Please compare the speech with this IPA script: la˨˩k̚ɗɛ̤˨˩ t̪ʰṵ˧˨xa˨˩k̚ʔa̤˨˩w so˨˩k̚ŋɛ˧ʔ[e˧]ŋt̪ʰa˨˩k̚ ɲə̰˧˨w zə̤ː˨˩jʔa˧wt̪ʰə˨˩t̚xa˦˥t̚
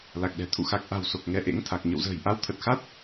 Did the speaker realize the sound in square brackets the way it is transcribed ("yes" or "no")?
no